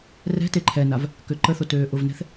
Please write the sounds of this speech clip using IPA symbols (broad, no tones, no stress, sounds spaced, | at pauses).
r ɛ̤ t e ǃʰ ɛ n a v | k ø ǃ ə θ o t øː ʔ ʊ v n ɛ̤ θ